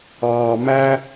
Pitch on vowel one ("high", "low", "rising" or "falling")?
low